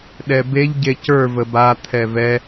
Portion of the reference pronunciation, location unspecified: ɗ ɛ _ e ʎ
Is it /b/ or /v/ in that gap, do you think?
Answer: b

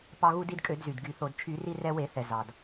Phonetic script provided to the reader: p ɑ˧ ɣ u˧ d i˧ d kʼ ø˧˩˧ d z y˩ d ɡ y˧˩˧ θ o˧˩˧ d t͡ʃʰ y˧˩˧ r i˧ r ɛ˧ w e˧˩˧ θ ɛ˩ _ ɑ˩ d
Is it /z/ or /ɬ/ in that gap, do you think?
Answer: z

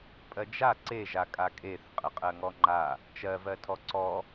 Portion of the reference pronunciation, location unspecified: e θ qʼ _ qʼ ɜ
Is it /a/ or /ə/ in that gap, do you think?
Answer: ə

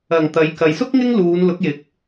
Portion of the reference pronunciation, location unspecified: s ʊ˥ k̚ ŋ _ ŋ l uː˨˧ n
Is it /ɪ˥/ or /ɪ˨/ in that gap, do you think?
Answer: ɪ˥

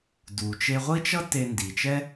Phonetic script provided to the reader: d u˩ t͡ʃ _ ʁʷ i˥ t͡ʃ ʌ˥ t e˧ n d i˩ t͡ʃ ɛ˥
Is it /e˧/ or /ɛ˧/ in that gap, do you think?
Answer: e˧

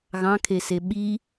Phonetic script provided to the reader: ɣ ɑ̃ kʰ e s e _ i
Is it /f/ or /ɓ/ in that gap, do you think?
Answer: ɓ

